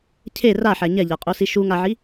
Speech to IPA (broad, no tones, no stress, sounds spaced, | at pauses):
cʰ e r a ħ æ ɲ ɛ ʎ a qʼ o s i ʃ u ŋ a ʕ i